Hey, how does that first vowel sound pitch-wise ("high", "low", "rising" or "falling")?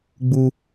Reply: high